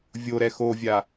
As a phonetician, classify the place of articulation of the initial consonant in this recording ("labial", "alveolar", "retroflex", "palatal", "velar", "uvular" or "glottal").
labial